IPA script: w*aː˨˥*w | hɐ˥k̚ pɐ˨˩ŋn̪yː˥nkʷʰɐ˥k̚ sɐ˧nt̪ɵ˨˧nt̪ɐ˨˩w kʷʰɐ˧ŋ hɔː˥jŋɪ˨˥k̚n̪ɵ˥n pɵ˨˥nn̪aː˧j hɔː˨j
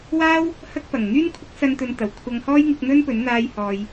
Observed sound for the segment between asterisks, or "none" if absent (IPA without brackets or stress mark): aː˥